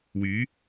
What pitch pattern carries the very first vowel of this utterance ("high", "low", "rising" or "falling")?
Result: rising